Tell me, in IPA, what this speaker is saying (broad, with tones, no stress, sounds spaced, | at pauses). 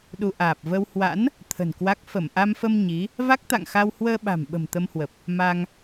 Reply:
ɗ u˧ ʔ aː˨˩ p̚ v ə˧ w h w a̰˧˥ n | t̪ʰ ə̤˨˩ n k w a˦˥ k̚ f ə˧˩ m ʔ a˧ m f ə˧ m ɲ i˨˦ | v a˦˥ k̚ t̪ a̰˧˨ ŋ x a˧ w h w əː˧ ɓ a̤˨˩ m ɓ ə̤˨˩ m t̪ ə˧ m h w ə˨˩ p̚ | m a˧ ŋ